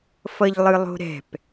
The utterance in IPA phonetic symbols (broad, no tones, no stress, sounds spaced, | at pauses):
f ʌ ʎ lˠ ɯ lˠ o̤ ɾ ɛ̤ p